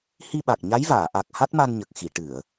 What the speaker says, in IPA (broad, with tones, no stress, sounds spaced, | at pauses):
h i˧ ɓ a˨˩ k̚ ɲ a˧˥ j v aː˨˩˨ ʔ a˨˩ k̚ h a˦˥ t̚ m a˧ n ɲ ə˨˩ k̚ x i˨˩˨ ʈ ɨ˨˩˨ ə̯